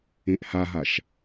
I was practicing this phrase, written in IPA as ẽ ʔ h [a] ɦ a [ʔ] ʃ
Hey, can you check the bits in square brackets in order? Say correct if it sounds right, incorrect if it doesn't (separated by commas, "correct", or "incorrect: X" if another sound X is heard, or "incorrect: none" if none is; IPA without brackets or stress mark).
correct, incorrect: none